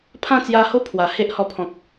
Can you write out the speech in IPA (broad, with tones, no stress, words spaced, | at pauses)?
pʰã˥˧t͡sja˧ho˥˧ pʰwa˨˩he˦ʔhɔ˧pʰɔ̃˨k̚